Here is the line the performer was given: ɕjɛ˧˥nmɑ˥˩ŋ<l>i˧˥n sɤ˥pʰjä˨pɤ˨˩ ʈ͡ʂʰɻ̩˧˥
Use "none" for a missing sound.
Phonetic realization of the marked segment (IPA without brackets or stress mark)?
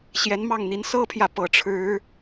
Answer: n̪